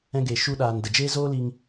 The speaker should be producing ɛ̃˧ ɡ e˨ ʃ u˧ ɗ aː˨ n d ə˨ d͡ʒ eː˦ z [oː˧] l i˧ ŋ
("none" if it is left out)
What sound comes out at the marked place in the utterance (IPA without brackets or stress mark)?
oː˦